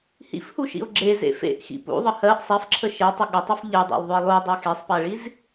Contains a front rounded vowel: yes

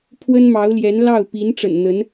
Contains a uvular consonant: no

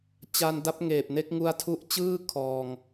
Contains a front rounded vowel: no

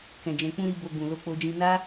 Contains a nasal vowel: yes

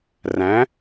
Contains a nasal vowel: yes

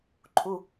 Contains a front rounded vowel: no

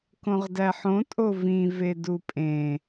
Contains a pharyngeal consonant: yes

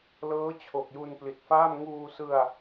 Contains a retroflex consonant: no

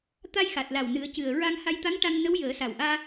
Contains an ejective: no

